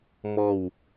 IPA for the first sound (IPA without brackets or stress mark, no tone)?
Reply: m